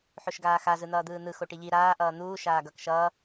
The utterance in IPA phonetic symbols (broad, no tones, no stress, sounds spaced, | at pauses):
ħ o ʃ ɡ aː x a z ɯ n̪ ʌː d̪ ɯː n̪ ɯ x o ʈ i ʎ i ɾ aː ʔ ʌː n̪ uː ʃ aː ɡ ʌ k ʃ ʌː